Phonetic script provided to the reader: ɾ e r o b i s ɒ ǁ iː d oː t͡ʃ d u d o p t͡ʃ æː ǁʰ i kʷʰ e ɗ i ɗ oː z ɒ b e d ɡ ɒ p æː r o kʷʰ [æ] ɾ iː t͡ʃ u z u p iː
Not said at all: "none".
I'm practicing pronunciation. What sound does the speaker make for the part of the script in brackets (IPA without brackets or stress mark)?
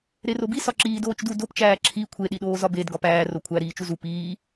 æ